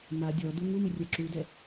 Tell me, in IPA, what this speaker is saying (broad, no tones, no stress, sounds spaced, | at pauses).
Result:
m a dʲ ɔ d u ŋ u m ɪ rʲ ɛ ǁ u d ɛ